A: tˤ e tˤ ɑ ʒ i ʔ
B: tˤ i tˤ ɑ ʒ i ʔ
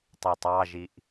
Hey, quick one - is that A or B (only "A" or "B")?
B